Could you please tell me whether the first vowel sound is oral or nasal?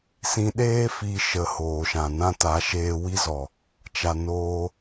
nasal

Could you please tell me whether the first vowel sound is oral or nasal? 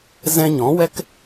nasal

